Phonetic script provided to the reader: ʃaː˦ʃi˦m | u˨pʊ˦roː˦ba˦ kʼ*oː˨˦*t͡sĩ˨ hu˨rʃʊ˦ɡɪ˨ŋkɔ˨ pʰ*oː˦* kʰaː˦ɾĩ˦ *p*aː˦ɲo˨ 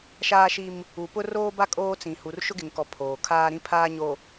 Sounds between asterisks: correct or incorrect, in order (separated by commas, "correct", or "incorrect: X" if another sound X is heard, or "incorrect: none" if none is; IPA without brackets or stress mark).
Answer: incorrect: oː˦, incorrect: oː˨, incorrect: pʰ